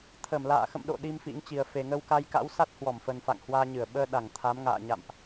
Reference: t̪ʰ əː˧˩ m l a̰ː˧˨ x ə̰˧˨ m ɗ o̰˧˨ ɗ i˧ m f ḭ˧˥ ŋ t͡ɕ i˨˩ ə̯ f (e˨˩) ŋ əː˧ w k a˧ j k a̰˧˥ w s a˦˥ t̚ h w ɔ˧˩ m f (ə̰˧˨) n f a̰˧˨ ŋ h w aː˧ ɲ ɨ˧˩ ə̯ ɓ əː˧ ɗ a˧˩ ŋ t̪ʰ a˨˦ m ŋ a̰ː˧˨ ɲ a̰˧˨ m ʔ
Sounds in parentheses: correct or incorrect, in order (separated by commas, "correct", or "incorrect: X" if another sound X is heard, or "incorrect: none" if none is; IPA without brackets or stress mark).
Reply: correct, incorrect: ə˨˩